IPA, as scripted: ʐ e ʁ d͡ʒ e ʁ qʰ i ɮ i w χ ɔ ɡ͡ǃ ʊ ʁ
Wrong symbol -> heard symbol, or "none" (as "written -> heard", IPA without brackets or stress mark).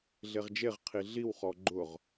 ʐ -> ɮ